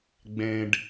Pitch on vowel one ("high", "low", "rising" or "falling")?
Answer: low